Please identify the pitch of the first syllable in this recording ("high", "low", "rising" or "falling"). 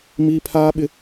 high